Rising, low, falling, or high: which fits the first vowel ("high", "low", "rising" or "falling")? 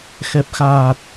low